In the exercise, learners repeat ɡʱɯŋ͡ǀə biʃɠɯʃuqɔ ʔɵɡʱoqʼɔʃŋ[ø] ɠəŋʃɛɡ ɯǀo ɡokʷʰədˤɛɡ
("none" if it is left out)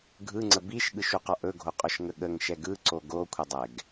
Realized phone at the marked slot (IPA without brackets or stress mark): ə